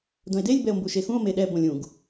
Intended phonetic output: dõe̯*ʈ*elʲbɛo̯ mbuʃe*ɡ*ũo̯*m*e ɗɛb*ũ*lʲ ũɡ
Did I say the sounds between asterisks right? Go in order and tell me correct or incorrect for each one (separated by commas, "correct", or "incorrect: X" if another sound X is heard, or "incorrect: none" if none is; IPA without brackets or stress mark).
incorrect: d, incorrect: x, correct, incorrect: õ